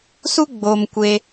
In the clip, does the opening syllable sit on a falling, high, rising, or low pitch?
high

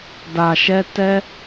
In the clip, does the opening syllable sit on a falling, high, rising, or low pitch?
low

